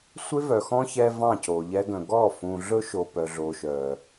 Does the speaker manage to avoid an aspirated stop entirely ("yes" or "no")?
yes